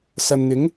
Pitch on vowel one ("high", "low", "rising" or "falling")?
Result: low